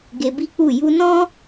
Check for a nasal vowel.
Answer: present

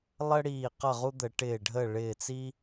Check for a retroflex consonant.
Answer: present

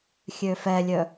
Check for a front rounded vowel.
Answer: present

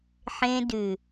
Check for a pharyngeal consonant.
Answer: present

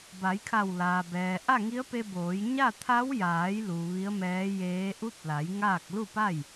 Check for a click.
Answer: absent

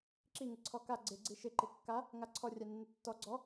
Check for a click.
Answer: present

